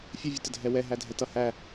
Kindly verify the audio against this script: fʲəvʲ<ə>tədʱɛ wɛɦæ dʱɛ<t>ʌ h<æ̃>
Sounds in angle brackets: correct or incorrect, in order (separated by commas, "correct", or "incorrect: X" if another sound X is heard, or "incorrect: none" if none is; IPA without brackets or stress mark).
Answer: correct, correct, incorrect: æ